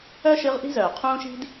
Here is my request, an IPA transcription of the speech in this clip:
œ˥ ʃ ɨ˧˥ ʁ ʔ i̤˥ z œː˩ qʰ ũː˥ ʃ i̤˥ d

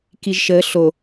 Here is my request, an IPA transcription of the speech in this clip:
k i ʒ ʃ ə ɬ o

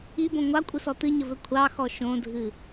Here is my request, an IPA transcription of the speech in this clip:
i b õ ŋʷ ɑ kʷʼ ɨ s ɔ t ɨ ɲ ə v ɘ kʷʰ ɑ x ɔ ʃ õ dʱ ɨ

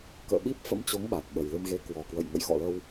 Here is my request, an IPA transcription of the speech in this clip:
k ə̰ː˧˨ ɓ i˦˥ p̚ f ə̰˧˥ m t͡ɕ o˨˦ ŋ ɓ a˨˩ t̚ ɓ ə˨˩ j l ɨ˧ m ɣ e˨˦ k w ɔ˨˩ k w ə̰˧˨ j ŋ ə̰˧˨ j x ɔ̰˧˨ l ə˧ w

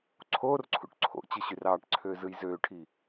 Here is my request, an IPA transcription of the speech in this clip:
ǀʰ oː r ǀʰ ṵ ʈ ǀʰ o̰ t͡ɕ ɯ ɕ y r ɑː ʈ ǀʰ øː z ɯ j z øː ʈʰ i

